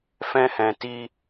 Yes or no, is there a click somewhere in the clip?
no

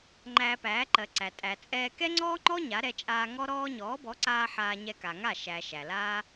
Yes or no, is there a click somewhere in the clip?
yes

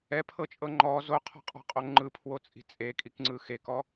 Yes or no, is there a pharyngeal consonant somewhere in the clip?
no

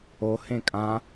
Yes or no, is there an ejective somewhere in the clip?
yes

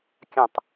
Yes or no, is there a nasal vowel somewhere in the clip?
yes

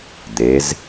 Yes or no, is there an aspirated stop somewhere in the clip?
no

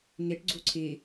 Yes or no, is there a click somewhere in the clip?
yes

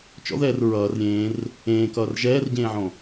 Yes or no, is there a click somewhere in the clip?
no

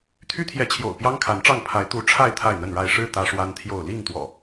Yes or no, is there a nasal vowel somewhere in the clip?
no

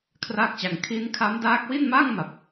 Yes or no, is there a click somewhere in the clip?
no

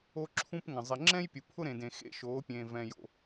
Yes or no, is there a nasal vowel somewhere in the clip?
yes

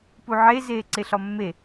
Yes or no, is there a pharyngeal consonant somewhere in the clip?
yes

